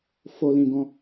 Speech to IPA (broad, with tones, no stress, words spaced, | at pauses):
fo˨lĩ˨ ɡɔ̃˧